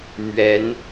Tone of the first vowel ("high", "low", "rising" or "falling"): rising